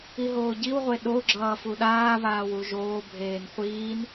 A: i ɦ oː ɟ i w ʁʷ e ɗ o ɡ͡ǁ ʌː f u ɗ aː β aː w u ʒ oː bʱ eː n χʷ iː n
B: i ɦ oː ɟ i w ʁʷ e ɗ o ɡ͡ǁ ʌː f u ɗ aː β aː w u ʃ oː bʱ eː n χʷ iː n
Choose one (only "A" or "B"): A